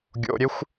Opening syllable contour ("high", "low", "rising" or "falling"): low